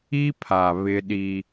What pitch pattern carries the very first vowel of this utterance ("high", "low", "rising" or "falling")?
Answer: high